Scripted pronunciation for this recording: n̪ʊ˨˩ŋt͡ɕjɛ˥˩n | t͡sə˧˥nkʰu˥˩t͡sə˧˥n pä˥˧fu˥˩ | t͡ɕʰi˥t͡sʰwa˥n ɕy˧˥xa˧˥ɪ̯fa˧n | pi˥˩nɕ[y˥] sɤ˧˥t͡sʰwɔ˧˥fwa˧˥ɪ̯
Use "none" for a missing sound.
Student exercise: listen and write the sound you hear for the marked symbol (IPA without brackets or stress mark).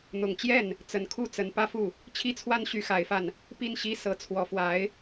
i˥